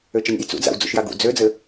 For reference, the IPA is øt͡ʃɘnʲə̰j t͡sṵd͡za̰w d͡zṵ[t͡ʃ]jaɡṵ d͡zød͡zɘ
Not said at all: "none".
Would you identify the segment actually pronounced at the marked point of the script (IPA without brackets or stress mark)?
ʃ